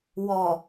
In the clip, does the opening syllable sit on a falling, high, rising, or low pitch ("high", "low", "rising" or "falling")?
low